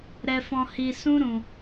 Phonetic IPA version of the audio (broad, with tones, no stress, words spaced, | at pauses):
ɾɛ˧fɔ̃˧hi˧ sũ˦ɾũ˧